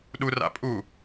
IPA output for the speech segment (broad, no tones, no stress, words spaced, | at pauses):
ɗura̰ pʼu